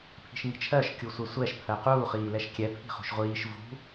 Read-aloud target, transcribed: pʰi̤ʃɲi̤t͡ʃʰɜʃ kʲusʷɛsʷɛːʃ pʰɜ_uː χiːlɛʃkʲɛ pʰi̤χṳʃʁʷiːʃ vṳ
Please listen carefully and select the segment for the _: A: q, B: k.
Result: A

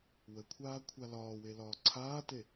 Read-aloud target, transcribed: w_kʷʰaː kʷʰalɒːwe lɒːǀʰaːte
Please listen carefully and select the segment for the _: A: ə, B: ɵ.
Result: A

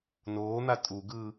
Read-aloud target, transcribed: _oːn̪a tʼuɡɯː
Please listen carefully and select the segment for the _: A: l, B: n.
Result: B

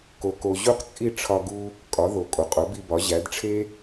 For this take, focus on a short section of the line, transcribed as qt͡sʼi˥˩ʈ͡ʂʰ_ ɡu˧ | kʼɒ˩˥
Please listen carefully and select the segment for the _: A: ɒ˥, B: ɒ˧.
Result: B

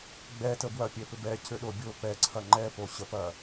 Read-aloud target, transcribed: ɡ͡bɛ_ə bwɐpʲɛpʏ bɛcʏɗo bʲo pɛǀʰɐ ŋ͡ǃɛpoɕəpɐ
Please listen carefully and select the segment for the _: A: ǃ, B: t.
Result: B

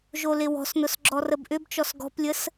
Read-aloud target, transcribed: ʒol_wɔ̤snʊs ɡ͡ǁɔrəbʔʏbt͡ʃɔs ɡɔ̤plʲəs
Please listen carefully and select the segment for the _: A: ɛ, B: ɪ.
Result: B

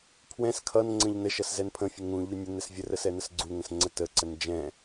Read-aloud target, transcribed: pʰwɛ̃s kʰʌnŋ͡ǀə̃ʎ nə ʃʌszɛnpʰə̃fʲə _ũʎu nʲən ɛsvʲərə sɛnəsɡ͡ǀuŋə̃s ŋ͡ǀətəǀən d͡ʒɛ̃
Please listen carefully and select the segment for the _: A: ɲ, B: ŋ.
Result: B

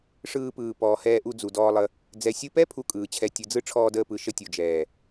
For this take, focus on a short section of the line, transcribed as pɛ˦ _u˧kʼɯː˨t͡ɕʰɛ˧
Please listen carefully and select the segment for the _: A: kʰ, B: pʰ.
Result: B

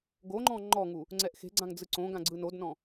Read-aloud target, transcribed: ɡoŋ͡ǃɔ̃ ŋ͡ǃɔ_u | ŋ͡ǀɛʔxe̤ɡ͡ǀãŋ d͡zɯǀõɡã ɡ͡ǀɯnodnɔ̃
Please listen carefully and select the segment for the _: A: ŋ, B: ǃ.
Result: A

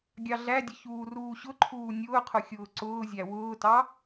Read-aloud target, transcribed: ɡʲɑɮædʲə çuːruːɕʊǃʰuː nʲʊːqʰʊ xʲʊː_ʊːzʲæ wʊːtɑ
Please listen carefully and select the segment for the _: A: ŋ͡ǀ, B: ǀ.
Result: B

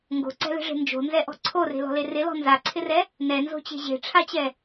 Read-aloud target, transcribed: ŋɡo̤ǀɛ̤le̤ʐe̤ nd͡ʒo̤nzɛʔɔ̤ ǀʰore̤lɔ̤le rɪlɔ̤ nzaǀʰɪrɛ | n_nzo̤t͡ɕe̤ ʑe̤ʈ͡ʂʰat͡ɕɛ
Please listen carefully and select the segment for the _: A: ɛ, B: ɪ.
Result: A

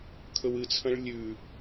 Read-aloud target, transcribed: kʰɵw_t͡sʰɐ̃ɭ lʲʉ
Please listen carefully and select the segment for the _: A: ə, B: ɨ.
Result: B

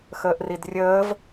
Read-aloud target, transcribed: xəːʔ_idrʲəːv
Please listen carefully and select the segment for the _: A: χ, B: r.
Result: B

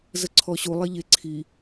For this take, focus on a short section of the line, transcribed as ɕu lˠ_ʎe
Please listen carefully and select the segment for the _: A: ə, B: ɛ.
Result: B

